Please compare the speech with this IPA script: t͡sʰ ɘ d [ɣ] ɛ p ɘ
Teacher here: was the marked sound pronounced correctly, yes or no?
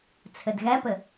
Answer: yes